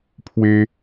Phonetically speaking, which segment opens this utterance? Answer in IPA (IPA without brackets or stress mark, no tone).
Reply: pʰ